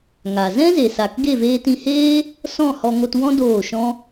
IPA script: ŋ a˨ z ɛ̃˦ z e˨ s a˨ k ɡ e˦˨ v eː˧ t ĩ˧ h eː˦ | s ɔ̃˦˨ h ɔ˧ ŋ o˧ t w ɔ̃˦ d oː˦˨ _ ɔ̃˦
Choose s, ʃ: ʃ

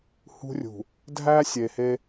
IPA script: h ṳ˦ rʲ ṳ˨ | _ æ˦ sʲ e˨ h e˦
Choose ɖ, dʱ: dʱ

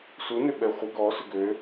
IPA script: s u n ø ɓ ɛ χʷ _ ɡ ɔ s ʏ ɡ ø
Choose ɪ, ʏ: ɪ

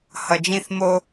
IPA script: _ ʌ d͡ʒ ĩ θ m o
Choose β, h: h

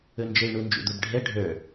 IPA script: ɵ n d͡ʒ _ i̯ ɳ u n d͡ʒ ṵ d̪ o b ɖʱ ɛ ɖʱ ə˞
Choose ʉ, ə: ə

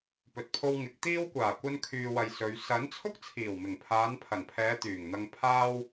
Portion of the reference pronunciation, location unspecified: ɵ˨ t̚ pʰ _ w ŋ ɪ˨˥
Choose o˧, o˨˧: o˧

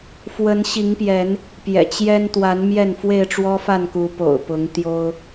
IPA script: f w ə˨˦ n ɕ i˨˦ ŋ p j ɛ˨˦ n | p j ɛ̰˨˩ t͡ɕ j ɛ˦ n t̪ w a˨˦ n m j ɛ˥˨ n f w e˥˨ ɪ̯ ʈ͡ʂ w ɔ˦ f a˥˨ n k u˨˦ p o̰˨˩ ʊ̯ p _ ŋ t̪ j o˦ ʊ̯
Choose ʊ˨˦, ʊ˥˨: ʊ˨˦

